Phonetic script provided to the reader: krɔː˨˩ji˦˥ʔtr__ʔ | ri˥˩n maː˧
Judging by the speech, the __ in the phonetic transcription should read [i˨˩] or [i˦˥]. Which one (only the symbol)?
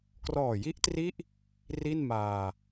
i˦˥